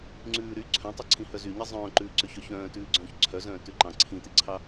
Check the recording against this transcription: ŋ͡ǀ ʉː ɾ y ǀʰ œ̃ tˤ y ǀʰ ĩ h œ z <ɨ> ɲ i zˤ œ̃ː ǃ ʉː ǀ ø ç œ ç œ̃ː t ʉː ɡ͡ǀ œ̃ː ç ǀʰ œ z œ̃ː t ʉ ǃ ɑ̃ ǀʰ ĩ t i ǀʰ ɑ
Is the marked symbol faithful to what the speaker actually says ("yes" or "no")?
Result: no